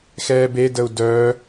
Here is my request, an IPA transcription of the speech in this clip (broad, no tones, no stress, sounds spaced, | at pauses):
x ɛː b e d ə u̯ d œː